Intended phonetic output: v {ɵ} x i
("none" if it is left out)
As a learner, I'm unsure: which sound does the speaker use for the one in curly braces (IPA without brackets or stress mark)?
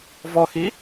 ɔ